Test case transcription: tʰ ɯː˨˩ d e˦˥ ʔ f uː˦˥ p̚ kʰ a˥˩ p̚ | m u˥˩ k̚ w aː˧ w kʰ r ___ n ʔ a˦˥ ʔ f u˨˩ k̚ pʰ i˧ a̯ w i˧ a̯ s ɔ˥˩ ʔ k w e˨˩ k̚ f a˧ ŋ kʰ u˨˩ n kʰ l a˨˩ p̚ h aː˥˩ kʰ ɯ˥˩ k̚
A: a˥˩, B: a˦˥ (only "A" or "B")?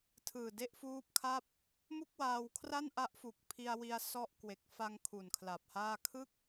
A